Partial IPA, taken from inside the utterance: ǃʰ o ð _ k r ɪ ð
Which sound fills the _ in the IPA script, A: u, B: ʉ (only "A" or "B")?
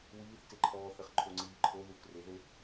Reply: A